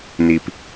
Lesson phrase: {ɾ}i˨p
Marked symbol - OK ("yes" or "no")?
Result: no